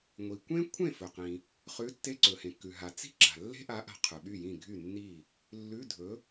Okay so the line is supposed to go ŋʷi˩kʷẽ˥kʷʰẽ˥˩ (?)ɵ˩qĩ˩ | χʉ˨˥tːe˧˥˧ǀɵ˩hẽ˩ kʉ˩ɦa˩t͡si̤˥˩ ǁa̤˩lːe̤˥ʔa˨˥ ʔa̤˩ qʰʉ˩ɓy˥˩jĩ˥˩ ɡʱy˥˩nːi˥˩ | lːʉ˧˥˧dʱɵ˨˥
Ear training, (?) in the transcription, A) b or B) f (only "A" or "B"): B